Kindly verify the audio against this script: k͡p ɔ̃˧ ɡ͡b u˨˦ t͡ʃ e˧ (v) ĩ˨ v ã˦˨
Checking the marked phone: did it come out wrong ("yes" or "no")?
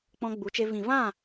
no